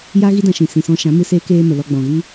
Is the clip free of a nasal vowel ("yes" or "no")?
no